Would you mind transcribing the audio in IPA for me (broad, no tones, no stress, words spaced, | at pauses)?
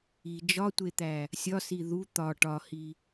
i d͡ʒɒtʷet̪æ | sʲɒsi ðu t̪ɒ ʈɒhi